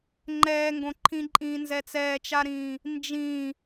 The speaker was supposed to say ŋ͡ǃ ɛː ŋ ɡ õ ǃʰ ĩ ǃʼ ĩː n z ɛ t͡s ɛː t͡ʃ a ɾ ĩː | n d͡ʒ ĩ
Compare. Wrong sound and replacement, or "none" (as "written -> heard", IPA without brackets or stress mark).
none